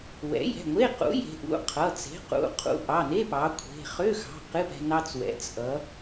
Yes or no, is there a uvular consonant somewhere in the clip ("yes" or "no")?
yes